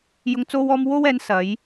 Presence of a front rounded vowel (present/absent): absent